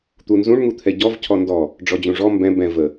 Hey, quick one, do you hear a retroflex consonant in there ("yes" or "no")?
yes